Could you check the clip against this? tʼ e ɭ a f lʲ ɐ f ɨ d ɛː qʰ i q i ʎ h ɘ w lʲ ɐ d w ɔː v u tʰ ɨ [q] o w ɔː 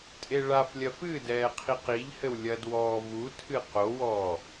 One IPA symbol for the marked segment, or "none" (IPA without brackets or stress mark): q